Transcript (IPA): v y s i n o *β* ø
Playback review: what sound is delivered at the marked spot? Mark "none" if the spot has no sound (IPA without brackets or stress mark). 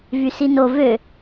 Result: v